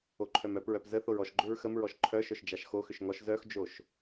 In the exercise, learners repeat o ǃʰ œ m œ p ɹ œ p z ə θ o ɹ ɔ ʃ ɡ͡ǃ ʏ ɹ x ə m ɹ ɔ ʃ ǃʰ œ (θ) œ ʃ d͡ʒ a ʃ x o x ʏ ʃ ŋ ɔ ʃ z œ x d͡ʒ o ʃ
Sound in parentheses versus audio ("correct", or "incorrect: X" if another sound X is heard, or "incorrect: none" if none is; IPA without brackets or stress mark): incorrect: ʃ